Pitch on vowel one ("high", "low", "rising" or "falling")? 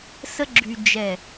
high